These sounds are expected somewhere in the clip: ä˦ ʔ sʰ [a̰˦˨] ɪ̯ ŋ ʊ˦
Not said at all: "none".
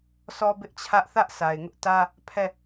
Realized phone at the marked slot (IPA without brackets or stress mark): a˨